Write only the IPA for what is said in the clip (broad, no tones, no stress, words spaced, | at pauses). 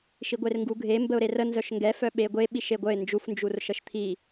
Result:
ʃiɡʷerŋɡuɡʱe mbəʊ̯ɾerə nzœʃŋɡɛ fœɓeɡʷe ɓiʃeɡʷœɪ̯ nd͡ʒuf nd͡ʒurʃəʃt̪ʰi